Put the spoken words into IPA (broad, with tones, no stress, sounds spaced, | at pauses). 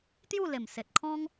t̪ j u˥˧ l e˨˩ m s e˨ t̚ kʰ ɔ̃˦ ŋ